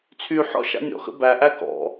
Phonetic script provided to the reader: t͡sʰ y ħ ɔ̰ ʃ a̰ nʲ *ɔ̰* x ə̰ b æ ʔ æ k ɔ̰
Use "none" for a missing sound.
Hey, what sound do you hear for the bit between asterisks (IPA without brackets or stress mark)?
ɔ̰